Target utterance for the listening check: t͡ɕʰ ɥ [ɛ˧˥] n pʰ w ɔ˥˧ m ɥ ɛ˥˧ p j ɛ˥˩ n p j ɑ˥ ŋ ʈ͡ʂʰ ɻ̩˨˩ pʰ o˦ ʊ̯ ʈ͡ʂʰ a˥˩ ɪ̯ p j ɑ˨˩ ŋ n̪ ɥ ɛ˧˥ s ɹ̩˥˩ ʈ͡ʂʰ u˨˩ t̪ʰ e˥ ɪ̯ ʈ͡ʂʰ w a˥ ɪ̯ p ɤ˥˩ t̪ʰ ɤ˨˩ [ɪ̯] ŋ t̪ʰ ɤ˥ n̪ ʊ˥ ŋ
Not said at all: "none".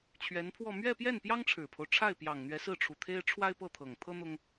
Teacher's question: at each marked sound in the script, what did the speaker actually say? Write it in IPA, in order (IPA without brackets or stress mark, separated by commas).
ɛ˧˥, none